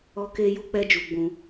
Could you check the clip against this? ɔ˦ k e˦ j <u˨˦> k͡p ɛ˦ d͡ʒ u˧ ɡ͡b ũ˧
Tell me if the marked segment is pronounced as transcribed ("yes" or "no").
no